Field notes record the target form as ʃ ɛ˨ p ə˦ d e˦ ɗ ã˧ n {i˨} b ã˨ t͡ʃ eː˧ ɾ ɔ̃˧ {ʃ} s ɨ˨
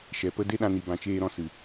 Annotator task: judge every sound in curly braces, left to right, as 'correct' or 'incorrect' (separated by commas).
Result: correct, incorrect